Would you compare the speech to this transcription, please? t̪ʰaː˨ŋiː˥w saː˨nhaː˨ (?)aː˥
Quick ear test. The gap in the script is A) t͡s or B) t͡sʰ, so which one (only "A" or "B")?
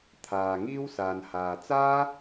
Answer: A